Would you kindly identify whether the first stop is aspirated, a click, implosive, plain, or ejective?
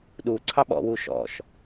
implosive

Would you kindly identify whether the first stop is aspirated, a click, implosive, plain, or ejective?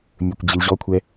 plain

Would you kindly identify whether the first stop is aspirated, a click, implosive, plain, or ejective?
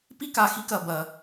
plain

